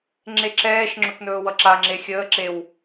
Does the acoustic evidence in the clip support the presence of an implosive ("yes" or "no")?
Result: no